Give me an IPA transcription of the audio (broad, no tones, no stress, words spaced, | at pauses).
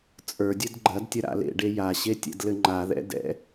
t͡sʼə˞dʲəd ɡ͡ǃɐdtʲɐ ɾa̰lḛɖe jaɕe tʲɛ̰dlɘŋ͡ǃaðɛ̰ dɛ̰